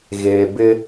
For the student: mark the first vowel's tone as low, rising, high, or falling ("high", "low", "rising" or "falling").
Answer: low